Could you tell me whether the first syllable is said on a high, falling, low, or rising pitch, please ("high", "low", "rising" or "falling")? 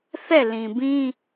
falling